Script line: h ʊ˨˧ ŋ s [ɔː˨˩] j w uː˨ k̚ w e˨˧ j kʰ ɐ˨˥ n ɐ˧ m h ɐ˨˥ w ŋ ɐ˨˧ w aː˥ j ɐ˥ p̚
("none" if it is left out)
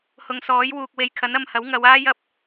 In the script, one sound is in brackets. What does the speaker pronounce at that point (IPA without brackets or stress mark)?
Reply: ɔː˨˥